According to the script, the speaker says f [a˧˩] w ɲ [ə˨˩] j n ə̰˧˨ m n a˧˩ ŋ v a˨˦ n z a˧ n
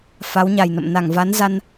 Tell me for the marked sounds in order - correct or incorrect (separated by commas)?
incorrect, incorrect